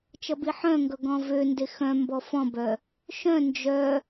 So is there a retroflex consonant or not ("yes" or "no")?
no